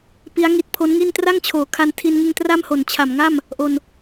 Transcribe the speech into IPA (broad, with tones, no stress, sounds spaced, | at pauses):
p i˦˥ a̯ ŋ i˦˥ t̚ pʰ o˦˥ n ŋ i˥˩ n t r a˥˩ ŋ t͡ɕʰ oː˨˩ kʰ a˧ n tʰ i˧ n ŋ ɯ˧ ŋ t r a˥˩ m h o˨˩ n t͡ɕʰ a˨˩ m ŋ a˥˩ m | ʔ o˧ n